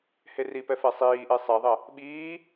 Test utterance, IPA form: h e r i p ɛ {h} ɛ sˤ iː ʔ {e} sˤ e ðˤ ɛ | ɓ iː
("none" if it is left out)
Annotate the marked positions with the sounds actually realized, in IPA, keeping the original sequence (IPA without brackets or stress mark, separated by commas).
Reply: f, e